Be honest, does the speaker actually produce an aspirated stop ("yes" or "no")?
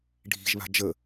no